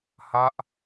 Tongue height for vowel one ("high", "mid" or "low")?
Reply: low